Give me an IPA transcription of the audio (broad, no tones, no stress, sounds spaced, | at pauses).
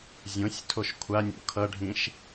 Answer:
zʲ õ sʲ tʰ o ʃ kʷʰ a nʲ o̰ kʰ ʌ ɖʱ ĩ ʃ